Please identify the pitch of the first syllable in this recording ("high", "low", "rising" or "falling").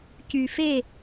low